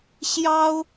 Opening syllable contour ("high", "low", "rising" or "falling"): high